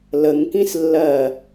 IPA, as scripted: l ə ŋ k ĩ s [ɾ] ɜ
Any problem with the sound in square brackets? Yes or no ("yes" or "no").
yes